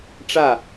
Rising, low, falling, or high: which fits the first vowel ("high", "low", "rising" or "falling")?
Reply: falling